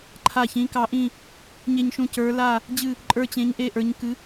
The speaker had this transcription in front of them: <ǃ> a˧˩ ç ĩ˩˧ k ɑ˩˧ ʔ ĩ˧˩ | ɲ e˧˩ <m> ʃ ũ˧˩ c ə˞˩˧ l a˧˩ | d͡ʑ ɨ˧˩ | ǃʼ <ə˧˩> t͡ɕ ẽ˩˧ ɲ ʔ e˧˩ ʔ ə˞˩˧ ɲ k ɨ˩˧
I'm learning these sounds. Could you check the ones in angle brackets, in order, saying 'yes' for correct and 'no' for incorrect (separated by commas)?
no, no, no